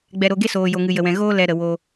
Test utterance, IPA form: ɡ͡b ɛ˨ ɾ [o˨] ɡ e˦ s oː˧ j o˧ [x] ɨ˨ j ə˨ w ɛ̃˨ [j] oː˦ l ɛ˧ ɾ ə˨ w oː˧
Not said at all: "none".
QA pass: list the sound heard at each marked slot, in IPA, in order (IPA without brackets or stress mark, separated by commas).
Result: o˨, ŋ, ɣ